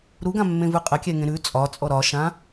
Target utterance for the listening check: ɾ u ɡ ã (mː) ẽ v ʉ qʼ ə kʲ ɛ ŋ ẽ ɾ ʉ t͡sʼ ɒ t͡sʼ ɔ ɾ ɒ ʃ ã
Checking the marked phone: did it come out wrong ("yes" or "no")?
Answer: no